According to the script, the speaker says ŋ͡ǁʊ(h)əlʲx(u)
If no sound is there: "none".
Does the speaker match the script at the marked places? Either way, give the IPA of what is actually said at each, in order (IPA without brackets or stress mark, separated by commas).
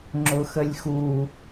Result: x, u